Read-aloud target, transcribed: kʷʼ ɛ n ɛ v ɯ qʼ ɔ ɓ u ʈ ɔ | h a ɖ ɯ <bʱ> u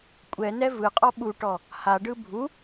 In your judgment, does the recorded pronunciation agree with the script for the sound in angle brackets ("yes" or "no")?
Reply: yes